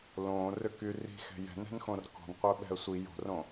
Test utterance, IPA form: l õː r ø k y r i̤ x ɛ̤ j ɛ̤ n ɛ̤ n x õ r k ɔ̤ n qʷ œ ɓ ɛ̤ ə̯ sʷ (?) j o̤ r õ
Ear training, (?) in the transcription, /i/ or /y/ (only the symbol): i